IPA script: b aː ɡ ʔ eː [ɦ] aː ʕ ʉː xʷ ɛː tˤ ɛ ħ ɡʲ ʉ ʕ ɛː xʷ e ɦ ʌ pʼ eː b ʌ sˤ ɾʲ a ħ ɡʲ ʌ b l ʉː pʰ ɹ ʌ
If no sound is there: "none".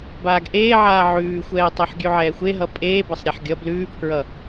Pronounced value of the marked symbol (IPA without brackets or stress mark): ʕ